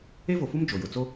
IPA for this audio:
e˦vo˨fu˦m d͡ʒo˨jʊ˨t͡so˦

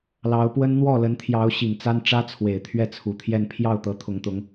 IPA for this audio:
lɑ˧˥ʊ̯pwə˥n n̪wɔ˥˩lə˧˥nt̪ʰjɑ˧˥ʊ̯ ɕi˨˩ŋt͡sa˥n ʈ͡ʂä˥t͡sʰwe˨˩ɪ̯ t̪ʰɥɛ˥˩t͡sʰu˨˩t̪ʰjɛ˥˧n pʰjɑ˥˩ʊ̯t̪ɤ˧˥ t̪ʰʊ˧˥ŋt̪ʊ˧˥ŋ

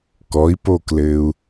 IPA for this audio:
kɔi̯poklɘːu̯

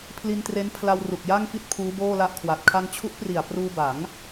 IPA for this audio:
pʰli˧ntre˦˥npʰla˧w ru˨˩k̚ja˥˩ŋfi˥˩t̚ pʰuː˦˥boː˥˩la˥˩ʔkʰwa˨˩t̚ kʰa˧ŋt͡ɕʰu˦˥ʔpri˨˩a̯ pruː˧ba˩˦ŋ

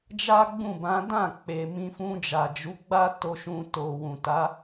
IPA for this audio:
d͡ʒa˦ɡ͡bũ˦˨bã˨˦ dã˦˨ k͡pe˨ mĩ˧fũ˧d͡ʒa˨d͡ʒu˨˦ ɡ͡ba˦ to˧ʃũ˧to˨ wũ˨ta˨˦

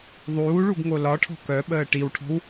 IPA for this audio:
ðˤuːɭuɡŋo lɒʈʰɔ̤ kœɓəː ʈiwʈʰɔ̤w

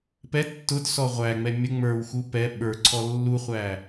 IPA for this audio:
pɛ tːʊd sɔʁʷæŋ͡mɛ mʲə ŋ͡mə˞wxu pɛ ɓə˞ǀʰɔ lːuχʷæ

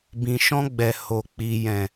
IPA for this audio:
bĩ˨ʃɔ̃˧ɡ͡bɛ˨ ho˨k͡pi˨ jɛ̃˨

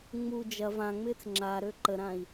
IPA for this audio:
ŋ͡mu d͡ʒɐ vãŋ͡mɪːt͡s ŋ͡ǁaɾø ǃəɾãi̯

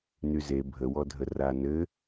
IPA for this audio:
nyze bʱəwɔdʱə ranɘ

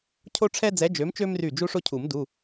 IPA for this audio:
cʰo˦ʈ͡ʂʰɛ˦d͡zɛ˨˦ d͡ʒø˨˦mt͡ʃø˦mry˧˩ d͡ʒu˦ʂo˦ cʰu˨˩˦mdu˩˧˩

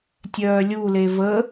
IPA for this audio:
tʲœːlʲule və

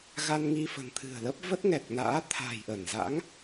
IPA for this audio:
ɣa˧nŋi˧fə̤˨˩nt̪ʰɨ̤˨˩ə̯ lə˦˥p̚ və˦˥t̚ŋɛ˨˩k̚na̰ː˧˥ t̪ʰa̤˨˩jʔə˧˩nza̰˧˥ŋ

